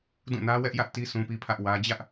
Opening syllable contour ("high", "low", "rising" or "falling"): falling